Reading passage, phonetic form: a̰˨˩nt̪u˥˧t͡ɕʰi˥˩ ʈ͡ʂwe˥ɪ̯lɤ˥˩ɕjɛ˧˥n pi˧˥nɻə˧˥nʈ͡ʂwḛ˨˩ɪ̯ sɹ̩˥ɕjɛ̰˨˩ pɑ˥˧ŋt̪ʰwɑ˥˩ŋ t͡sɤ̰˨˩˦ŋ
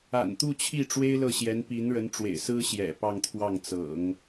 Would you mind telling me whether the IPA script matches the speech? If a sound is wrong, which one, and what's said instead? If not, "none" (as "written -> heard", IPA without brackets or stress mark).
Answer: none